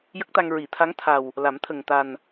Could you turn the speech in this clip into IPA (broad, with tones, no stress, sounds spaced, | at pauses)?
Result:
j ə˦˥ k̚ t̪ a˧ ŋ ɹ i˨˩˨ t̪ʰ a˧˥ ŋ t̪ʰ a˨˩ w | l a˨˩˦ m t̪ʰ ə˨˩ ŋ t̪ a˨˩ n